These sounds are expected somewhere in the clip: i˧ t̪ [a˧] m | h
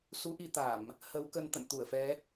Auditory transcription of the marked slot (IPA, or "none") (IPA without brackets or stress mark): a˧˩˨